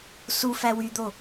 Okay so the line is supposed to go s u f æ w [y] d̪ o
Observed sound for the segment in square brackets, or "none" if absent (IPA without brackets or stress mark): y